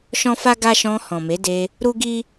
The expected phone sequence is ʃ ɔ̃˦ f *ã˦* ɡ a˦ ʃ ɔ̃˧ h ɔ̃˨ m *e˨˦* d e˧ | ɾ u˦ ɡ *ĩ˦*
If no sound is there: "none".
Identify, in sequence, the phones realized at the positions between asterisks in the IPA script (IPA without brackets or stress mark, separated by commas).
a˦, e˨˦, i˦